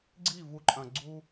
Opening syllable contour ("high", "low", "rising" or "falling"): falling